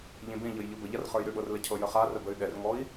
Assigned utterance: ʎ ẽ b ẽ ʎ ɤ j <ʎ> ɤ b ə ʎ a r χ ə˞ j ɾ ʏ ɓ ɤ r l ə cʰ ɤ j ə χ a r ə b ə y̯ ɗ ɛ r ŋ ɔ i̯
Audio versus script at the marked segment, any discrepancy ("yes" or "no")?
no